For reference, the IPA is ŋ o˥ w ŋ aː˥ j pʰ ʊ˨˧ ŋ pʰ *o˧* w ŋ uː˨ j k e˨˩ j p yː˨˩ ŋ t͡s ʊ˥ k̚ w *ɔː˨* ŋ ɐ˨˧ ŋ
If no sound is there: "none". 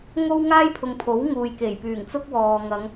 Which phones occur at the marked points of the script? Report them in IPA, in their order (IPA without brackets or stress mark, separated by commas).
o˨˥, ɔː˨